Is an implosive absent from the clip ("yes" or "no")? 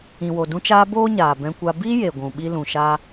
no